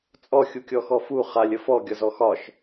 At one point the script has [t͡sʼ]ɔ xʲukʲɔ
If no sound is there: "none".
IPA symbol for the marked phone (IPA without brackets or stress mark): t͡sʼ